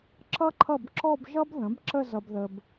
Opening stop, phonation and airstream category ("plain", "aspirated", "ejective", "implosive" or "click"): click